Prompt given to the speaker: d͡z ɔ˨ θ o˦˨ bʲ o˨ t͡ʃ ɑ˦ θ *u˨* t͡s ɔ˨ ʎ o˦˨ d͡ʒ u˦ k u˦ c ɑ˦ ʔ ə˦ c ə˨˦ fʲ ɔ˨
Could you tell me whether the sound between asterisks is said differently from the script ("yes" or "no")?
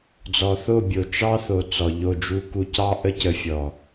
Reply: yes